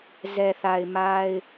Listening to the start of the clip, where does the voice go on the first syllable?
low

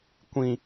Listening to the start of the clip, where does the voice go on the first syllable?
low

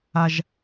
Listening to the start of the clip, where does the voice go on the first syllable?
high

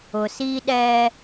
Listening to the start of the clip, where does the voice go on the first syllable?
low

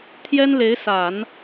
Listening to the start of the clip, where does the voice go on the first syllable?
high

